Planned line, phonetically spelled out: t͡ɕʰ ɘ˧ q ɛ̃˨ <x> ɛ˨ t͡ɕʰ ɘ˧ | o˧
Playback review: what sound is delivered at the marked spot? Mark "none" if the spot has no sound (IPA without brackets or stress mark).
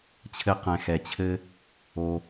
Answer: x